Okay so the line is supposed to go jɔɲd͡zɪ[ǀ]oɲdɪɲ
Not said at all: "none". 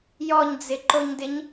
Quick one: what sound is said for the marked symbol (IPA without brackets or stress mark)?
ǃ